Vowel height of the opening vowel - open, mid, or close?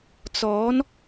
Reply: mid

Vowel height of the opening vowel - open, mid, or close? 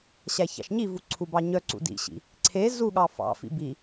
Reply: open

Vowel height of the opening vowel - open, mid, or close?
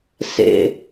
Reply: mid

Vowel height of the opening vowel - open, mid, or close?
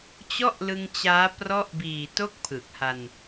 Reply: mid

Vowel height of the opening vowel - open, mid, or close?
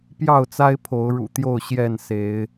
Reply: open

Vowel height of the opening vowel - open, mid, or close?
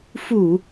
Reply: close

